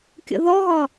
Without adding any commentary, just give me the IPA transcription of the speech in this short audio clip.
kʲ ə̰ ð ɔ ɣ ɒ

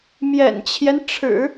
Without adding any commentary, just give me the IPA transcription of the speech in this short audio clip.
m j ɛ̰˨˩ n t͡ɕʰ j ɛ˦ n ʈ͡ʂʰ ɻ̩˨˩˦

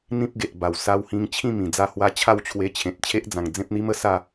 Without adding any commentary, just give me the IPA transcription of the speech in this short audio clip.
n̪ ĩ˦ p̚ ɡ e˨ ʔ b a˨˩ w s a˧ w h ĩ˧ ŋ t͡ɕʰ ĩ˥˧ m ĩ˨˩ d͡z a˥˧ h w a˦ t͡ɕʰ a˥˧ w t͡ɕʰ w e˧ t͡ɕʰ ẽ˨ t̚ t͡ɕʰ e˦ ʔ d͡z ã˨˩ ŋ d͡z ẽ˦ p̚ n̪ i˦ m ə˧ s a˥˧

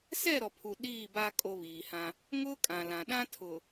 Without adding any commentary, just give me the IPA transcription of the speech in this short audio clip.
s ɛ˦˨ ɾ ɔ˨ pʰ u˨ ɗ iː˦˨ b a˦ kʼ o˦ β iː˨ h ã˦ | ŋ ʊ˦ kʼ ã˨ l ã˨ ɗ ã˦ tʰ ʊ˨

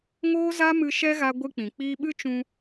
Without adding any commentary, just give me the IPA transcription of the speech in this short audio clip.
ŋ oː˦ z a˦ m ɨ˧ ʃ ɛ˦ ɣ a˧ ɡʷ ɨ˧ k͡p ĩ˨ k͡p iː˧ ɓ ɨ˦ t͡ʃ ũ˧

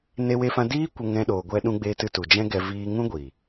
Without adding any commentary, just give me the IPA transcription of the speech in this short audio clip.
n e˧ w e˧ f ã˧ d iː˦ kʷ ə˧ ŋ ɛ̃˧ ɗ oː˨ ɡʷ ɛ˧ ɗ ũ˧ ɡ͡b e˧ t ɨ˧ t u˨ d͡ʒ ɛ̃˦ ɡ ɛ˧ v iː˧ ŋ ũ˦ ɡʷ i˨

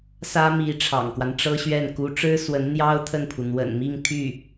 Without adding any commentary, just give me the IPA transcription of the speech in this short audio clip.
s ä˥ m i˧˥ ʈ͡ʂʰ ɑ̰˨˩ ŋ k w a˦ n ʈ͡ʂ ɤ˥ ɕ ɥ ɛ˥˩ n k u˧˥ ʈ͡ʂ ɻ̩˥ s w ə˧˥ n n̪ j ɑ˥ ʊ̯ t̪ʰ ə˥˩ n pʰ u˩ n̪ w ə̰˨˩ n m i˥˧ ŋ t̪ʰ y˥˩

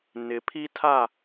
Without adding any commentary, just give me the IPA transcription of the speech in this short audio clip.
n ɪ˨ pʰ i˦ tʰ a˦˨

